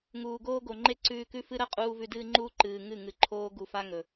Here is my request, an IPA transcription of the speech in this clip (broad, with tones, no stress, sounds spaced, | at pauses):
ŋ uː˨ ɡ oː˦ ɡ o˨ ŋ͡ǃ e˦ ǀ ʉː˧ k ʉ˦ f ɨ˦ ɾ ɐ˦ qʼ uː˧ v ʉ˧ d ɨː˦ ŋ͡ǃ uː˦ ǃ ɨː˨ ŋ ɨ˦˨ ŋ ɨ˨ ǃʰ oː˦ ɡ u˧ f a˦ ŋ ɵ˨